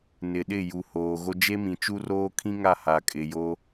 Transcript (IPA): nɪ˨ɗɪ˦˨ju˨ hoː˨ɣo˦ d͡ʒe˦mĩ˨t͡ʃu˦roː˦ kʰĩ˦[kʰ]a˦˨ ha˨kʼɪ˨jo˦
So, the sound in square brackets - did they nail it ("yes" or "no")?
no